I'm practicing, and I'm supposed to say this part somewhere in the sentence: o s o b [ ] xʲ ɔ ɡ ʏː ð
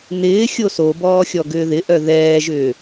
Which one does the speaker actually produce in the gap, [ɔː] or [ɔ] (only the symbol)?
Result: ɔː